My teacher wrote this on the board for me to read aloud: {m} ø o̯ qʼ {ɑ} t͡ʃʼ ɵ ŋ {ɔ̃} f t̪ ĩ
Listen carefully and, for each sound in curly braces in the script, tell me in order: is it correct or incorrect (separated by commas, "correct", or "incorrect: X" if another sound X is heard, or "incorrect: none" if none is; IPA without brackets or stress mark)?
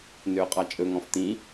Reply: incorrect: n, correct, correct